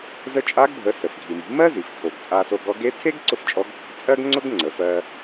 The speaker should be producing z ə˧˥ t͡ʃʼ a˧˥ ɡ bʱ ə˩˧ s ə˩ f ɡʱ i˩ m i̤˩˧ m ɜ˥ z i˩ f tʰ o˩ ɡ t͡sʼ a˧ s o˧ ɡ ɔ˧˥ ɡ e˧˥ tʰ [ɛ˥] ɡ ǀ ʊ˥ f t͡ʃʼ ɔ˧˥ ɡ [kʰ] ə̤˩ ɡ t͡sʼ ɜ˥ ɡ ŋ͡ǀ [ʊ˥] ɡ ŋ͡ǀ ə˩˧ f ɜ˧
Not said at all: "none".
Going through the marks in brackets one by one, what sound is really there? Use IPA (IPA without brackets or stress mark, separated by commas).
e˥, kʰ, ʊ˥